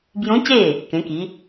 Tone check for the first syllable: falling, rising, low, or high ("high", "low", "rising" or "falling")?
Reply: rising